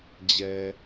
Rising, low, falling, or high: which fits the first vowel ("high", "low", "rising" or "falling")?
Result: low